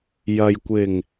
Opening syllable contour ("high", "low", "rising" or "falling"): low